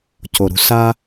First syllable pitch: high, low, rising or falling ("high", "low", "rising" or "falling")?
low